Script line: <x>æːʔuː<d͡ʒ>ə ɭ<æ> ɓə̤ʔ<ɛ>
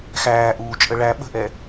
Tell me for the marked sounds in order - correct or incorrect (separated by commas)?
correct, incorrect, correct, correct